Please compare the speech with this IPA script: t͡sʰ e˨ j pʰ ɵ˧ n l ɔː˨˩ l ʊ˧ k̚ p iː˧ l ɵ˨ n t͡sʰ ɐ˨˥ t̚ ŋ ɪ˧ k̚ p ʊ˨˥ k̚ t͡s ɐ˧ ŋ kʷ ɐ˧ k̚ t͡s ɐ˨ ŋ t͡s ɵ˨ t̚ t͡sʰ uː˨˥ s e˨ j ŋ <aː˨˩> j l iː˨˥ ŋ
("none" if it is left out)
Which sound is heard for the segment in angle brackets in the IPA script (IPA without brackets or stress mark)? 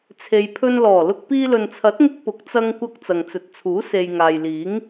aː˨